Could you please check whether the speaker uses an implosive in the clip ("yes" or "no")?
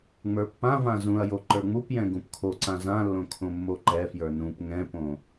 no